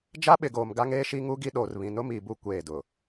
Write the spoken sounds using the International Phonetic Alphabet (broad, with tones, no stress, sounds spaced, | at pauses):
d͡ʒ a˦ ɓ ɪ˨ ɡ oː˨ m ɡ a˦ ŋ eː˦ ʃ i˦ ŋ u˦ ɡ i˦ ɗ oː˨ r β ĩ˨ n ʊ˦ m iː˨ b u˦˨ kʷ eː˦˨ d ʊ˨